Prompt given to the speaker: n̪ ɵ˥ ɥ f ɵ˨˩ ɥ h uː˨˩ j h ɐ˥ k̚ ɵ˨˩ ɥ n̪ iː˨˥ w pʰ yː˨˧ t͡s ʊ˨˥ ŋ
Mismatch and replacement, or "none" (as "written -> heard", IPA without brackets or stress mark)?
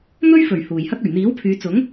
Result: none